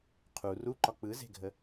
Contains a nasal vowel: no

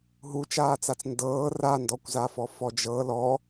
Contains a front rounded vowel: no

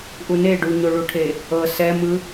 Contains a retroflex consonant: yes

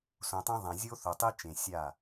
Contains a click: no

